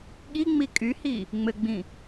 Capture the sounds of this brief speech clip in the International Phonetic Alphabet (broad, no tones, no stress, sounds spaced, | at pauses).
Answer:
ɠ i ŋ͡m i kʼ y h i | ŋ͡m ɘ ɡ͡b ĩ